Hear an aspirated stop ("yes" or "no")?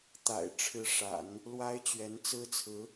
yes